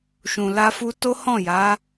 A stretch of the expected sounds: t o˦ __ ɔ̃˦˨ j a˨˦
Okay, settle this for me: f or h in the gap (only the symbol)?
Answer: h